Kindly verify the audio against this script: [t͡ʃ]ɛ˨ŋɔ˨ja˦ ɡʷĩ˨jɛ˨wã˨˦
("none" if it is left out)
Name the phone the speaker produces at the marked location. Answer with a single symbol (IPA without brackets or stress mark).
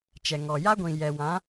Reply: t͡ʃ